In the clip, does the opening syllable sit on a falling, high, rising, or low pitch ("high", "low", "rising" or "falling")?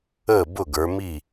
falling